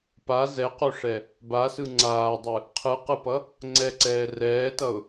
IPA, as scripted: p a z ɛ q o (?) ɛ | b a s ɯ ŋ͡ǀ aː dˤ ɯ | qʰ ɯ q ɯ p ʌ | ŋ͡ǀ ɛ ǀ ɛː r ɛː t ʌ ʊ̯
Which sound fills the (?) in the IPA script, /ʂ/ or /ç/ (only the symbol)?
ʂ